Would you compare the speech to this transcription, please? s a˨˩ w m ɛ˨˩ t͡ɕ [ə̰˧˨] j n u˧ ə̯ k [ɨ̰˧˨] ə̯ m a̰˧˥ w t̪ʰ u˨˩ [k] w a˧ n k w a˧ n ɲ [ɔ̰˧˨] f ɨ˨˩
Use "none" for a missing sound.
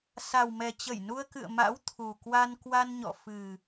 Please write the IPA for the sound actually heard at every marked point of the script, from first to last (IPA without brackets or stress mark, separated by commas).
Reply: ə˧˩, ɨ̰˧˨, k, ɔ̰˧˨